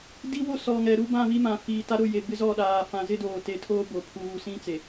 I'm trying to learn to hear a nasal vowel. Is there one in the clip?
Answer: yes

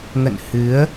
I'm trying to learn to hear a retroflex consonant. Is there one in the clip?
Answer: no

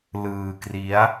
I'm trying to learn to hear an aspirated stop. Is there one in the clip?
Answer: no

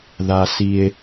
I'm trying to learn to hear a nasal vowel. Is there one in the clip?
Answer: no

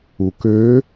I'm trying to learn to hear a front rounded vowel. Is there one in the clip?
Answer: yes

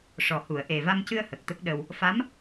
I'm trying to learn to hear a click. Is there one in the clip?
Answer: no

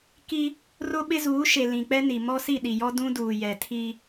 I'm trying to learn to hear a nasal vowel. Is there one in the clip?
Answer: yes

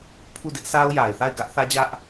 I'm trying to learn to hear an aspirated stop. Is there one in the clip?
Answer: yes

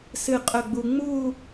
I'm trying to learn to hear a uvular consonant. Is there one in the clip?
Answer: yes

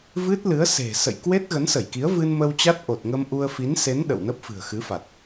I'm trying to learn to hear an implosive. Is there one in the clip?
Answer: yes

